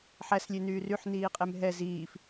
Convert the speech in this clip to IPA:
ħ æ s lʲ e n yː r y ħ n iː qʼ e m ɦ ɛ z iː f

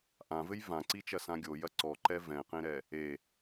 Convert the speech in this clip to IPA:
ʔ ã v ɘ j v ã ǀ i t͡ʃ ɐ s ã ɡʲ o j ɐ ǀ ɔ ǃ ɛ v ɛ̃ q ẽ ɾ ɛ | e

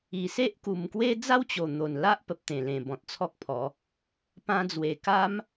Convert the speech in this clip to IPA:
i˨˩ s e˦ ʔ k u˨˩ m k w e˦ d͡z a˦ w t͡ɕ o˨˩ n̪ o˨˩ n l a˦ ʔ p ə˨ p̚ t̪ ẽ˨˩ l ẽ˨˩ b ɔ̃˨ t̚ t͡sʰ ɔ˦ k̚ pʰ ɔ˨˦ | p ã˧ d͡z w e˨˩ k a˦ m

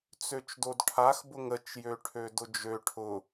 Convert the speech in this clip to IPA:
t͡s ø t͡ʃ d o d ʈʰ a x b ʊ ŋ ə t͡ʃ j ø ʈʰ ø d ʊ d͡ʒ ø ʈʰ ʊ

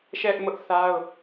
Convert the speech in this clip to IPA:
ʃ ɛ˦ ʔ m ʊ˦ ʔ θ a˦ ʊ̯

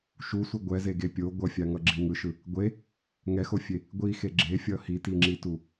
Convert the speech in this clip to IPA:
ʃ u sʷ i ɡʷ ɛ z e ɡ e pʲ o ɡʷ ʌ fʲ a ŋ ʌ ɡ͡ǁ i ŋ ɯ ʃ ɯ | ɡʷ e | ŋ ɛ x o fʲ e | ɡʷ i x e ɡ͡ǁ e fʲ ʌ h i t i ŋ͡ǁ i t u

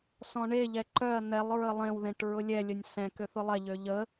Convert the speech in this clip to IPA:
s ɔ̃ ɳ e ʎ ɛ ǃ œ ɐ̯ n̪ ɛ lˠ ɹ ə lˠ ẽ w ð ẽ ʈ ɹ ʊ lʲ ɛ lʲ ə nʲ s ɛ̃ k ø θ ʊ lˠ ɛ ʎ ø ʎ ə

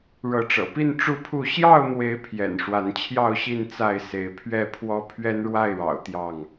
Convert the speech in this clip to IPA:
ɻ ɤ˨˦ ʈ͡ʂ ɤ̰˨˩ p i˥˨ n ʈ͡ʂ u˥˨ pʰ u˥˨ ɕ j ɑ˥˨ ʊ̯ n̪ w e˨˦ ɪ̯ pʰ j ɛ̰˨˩ n ʂ w a˨˦ n t͡ɕʰ j ɑ˥˨ ʊ̯ ɕ i˥˨ n t͡s a˥˨ ɪ̯ s e˨˦ ɪ̯ pʰ ɥ ɛ˥˨ pʰ w ɔ˦ pʰ ɥ ɛ˦ n ɻ w a˥˨ ɪ̯ ɻ ɑ̰˨˩ ʊ̯ t̪ j ɑ˥˨ ŋ

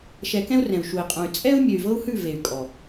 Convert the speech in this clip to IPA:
ʃ ɛ˧ k ɛ̃˦ u̯ r ɛ̃˨ u̯ ʃ u˨ i̯ qʼ ũ˨ y̯ t͡sʼ ɛ˦ u̯ mʲ ø˨ y̯ v ɤ˦ u̯ h ʉ˦˨ v e˨ y̯ kʼ ɔ˨

